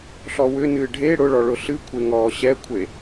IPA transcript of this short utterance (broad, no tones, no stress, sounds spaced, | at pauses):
ɬ ɔ w ʏ n ɨː ɖʱ e ɽ ʊ ɭ ɔ ɭ ʊ ɬ ɨ kʷʰ e ŋ ɔː ɕ ɛ kʷʰ e